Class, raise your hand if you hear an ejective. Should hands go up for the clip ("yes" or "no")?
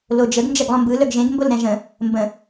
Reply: no